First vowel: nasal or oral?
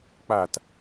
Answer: oral